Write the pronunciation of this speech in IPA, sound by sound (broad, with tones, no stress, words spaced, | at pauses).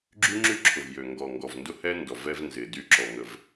ɡ͡ǁy˦ŋ͡ǁy˦ ǁʰʊ˨vjø˨ ŋɡɔ˨ŋɡɔ˨vndʊ˦hɛ˦ ndɔ˨vɛ˦v nzɪ˨ dy˦ǁɔ˨ŋə˨v